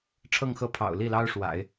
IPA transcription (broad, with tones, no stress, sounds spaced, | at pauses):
ʈ͡ʂʰ ɤ˥˧ ŋ x ɤ˥˩ pʰ ɑ̰˨˩ ʊ̯ l i˥˩ l ɑ˥ ʊ̯ ʂ w a̰˨˩˦ ɪ̯